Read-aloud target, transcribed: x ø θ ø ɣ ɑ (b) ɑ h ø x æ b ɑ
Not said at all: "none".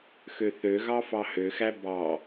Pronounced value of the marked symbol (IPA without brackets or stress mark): f